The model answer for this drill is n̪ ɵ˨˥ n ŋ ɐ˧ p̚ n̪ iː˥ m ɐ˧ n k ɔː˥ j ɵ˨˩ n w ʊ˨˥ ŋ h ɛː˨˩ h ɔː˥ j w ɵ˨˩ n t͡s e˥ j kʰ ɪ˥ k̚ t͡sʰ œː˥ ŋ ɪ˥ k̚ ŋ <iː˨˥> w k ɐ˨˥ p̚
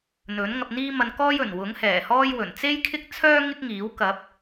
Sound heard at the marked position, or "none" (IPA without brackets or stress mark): iː˨˥